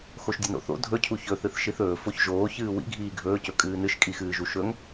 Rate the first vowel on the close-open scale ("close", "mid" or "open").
mid